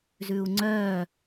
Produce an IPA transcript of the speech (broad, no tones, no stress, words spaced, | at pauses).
zʉu̯ŋ͡ǀœ